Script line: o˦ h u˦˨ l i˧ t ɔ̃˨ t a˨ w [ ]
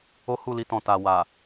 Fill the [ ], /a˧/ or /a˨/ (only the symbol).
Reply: a˨